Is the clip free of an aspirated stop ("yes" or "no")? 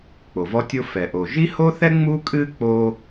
yes